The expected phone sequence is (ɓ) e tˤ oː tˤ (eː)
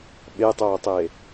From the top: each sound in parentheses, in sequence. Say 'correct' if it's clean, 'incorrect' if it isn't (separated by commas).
correct, correct